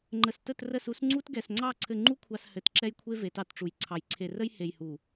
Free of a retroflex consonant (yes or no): no